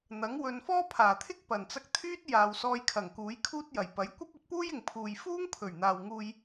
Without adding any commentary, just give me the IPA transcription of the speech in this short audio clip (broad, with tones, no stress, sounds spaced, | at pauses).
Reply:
n̪ ɐ˨˥ ŋ w ɵ˨˧ n f ɔː˥ pʰ aː˨˩ t̪ʰ ɪ˥ k̚ p ɐ˨˩ n t͡s ɐ˧ k̚ t̪ʰ yː˥ t̚ j aː˨ w s ɔː˧ j kʰ ɐ˨˩ ŋ k uː˨˥ j kʰ uː˥ t̚ j ɐ˨˩ j p ɐ˨˥ j kʷ ɐ˥ p̚ ɵ˨˥ t̚ p uː˥ j ɪ˨ ŋ pʰ uː˨ j f uː˥ ŋ pʰ ɵ˨˩ ɥ n̪ aː˨ w ŋ uː˧ j